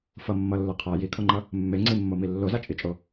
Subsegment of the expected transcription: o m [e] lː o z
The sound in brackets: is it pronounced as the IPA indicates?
no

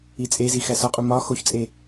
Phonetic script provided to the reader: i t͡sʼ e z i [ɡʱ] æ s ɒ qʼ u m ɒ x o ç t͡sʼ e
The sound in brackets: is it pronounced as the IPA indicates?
no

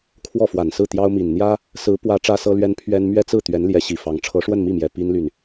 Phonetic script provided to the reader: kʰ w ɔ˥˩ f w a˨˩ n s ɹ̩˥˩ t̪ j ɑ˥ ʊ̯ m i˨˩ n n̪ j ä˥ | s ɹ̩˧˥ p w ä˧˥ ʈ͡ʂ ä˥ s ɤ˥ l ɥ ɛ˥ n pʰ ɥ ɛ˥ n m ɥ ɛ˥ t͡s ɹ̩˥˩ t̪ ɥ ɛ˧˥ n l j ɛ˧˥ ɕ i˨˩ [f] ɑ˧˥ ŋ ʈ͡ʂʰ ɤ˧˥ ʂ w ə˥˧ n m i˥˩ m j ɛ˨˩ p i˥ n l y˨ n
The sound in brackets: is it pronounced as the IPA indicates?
yes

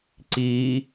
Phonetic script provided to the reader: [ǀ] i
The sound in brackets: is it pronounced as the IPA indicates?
yes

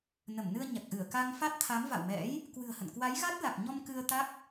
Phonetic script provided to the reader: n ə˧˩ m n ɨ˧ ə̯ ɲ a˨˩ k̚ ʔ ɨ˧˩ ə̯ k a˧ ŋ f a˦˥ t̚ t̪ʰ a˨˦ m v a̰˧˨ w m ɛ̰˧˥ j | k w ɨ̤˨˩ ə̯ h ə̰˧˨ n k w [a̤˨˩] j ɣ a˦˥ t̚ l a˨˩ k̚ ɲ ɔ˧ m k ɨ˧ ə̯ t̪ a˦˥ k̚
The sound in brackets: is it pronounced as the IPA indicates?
no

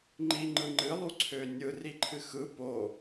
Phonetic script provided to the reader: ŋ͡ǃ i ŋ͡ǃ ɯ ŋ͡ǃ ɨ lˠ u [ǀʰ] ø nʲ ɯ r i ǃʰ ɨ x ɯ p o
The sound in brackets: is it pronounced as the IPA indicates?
yes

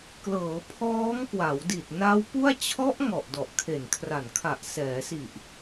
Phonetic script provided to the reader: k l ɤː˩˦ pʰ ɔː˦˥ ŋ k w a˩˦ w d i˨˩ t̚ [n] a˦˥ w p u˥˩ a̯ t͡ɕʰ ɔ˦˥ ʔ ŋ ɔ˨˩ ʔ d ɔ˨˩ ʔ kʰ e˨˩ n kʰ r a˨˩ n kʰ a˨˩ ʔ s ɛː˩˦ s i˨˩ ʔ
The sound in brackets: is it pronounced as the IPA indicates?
yes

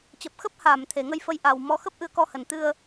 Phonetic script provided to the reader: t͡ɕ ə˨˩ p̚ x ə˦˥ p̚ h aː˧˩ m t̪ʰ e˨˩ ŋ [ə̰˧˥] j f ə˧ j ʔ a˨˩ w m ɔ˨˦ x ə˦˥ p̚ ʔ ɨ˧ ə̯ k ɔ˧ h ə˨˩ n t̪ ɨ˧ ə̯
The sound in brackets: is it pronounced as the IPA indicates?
no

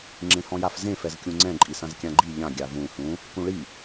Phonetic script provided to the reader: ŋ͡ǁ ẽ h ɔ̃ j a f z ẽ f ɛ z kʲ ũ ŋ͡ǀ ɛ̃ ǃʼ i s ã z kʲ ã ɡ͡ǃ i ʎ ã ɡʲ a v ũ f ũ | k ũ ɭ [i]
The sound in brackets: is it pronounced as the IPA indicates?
yes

